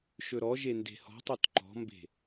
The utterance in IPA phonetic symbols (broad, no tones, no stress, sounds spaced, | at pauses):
ʃ ɵ ɾ ɔ ʒ e n d e̤ h ɔ̤ tˤ o t ǃ ɔ̤ m b e̤